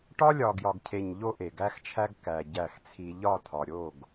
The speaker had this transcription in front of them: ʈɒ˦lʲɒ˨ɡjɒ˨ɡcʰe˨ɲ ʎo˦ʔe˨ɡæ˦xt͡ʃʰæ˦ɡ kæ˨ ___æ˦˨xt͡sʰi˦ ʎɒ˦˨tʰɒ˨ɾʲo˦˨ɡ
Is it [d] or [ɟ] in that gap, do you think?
ɟ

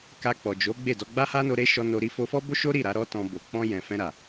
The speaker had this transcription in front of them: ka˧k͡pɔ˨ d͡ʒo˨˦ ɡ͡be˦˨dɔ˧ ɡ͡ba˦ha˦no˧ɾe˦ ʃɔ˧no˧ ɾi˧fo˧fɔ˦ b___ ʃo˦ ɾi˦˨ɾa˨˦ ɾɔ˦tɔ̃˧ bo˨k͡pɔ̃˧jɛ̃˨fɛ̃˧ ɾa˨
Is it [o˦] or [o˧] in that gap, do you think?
o˦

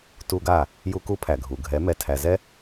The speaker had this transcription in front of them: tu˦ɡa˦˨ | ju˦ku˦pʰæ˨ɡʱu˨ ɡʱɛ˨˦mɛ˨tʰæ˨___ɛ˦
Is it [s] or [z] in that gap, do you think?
z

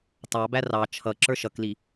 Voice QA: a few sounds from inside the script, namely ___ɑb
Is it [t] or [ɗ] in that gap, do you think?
t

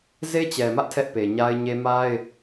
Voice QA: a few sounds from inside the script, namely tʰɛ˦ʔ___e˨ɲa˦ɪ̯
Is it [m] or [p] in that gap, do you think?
p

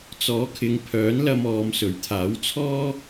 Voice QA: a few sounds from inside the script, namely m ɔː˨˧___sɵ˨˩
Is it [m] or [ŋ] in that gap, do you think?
m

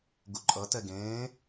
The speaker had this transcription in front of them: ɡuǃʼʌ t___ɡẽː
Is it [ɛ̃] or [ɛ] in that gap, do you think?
ɛ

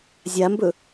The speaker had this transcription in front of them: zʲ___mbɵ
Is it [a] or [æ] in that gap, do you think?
a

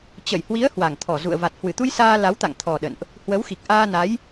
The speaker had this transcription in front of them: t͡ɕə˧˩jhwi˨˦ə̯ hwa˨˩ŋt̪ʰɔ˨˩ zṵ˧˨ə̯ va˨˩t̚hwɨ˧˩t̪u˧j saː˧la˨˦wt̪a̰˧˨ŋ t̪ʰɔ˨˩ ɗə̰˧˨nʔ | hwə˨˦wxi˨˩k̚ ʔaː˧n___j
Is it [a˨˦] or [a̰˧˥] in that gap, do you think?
a˨˦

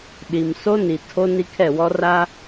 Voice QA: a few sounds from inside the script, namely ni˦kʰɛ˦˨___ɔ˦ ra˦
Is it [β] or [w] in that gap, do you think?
w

